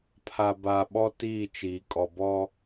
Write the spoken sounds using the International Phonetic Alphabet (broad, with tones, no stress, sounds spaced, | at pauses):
pʰ a˨ b aː˨ ɓ ɔ˦ t iː˦˨ t͡ʃ iː˨ kʼ ɔ˨ b ɔ˦